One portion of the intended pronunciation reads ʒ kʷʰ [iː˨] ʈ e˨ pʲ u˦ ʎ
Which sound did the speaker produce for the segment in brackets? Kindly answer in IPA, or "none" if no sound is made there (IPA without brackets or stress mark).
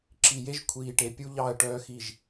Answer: iː˨